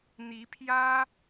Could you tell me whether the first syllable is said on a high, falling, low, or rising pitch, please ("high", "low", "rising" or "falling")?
rising